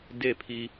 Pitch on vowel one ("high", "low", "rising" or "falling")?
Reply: falling